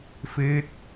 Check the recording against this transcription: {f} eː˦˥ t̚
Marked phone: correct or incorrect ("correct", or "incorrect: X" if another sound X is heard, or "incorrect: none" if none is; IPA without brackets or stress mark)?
correct